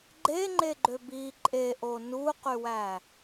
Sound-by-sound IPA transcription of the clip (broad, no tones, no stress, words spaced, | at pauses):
ɡ͡ǃeŋ͡ǃeɡ͡ǃø bi ǃʼeʔo nuqywæ